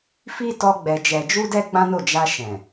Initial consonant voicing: voiceless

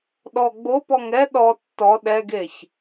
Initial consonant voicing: voiced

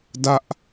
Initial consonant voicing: voiced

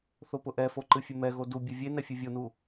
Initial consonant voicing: voiceless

